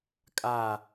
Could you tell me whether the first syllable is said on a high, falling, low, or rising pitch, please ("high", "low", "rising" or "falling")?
falling